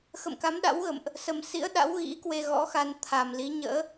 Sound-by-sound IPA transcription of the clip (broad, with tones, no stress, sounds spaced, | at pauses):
x ə̰˧˨ m k a˨˦ m ɗ a̰˧˥ w ɣ ə̰˧˨ m ʔ | s ə˨˩ m s ḭ˧˥ ə̯ ɗ a̰˧˥ w ɣ ḭ˧˥ k w e˧ ɣ ɔ̰˧˥ x a˧ n t̪ʰ a˨˩ m l i˨˦ ɲ ə̰ː˧˥